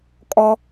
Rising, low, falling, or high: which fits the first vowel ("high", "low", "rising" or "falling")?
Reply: high